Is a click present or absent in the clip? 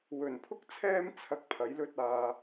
absent